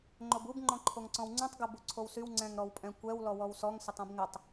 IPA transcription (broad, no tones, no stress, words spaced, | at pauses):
ŋ͡ǃobub ŋ͡ǃɔ̃ǃʰoŋǀɔ̃wŋ͡ǀũtˤ ɡɪ buǀʰowsyw ŋ͡ǀɛ̃ŋɾɔwpʼɛ̃kʷɛw lɔwɔwsɔŋ sɪtˤũbŋɪtˤ